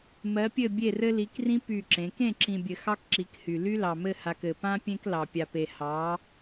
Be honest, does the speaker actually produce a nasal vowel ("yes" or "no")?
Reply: yes